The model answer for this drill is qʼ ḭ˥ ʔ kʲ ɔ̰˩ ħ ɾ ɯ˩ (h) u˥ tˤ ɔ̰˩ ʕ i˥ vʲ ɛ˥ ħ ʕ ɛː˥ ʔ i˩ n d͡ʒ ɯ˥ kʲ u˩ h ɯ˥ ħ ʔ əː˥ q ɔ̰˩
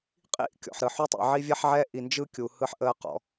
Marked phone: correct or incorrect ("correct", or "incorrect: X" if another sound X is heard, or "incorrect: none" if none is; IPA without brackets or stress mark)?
incorrect: ħ